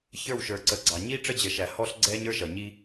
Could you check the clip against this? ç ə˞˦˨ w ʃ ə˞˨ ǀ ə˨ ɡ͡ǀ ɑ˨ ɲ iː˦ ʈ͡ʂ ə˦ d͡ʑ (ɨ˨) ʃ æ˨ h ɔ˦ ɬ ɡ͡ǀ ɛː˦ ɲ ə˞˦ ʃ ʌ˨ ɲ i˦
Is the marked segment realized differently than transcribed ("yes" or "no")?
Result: yes